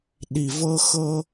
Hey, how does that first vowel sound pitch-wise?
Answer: low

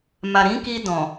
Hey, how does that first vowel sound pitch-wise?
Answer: low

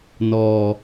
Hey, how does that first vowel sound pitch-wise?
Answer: low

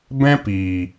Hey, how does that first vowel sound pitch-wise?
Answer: high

